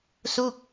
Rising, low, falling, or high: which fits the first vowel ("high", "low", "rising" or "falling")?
falling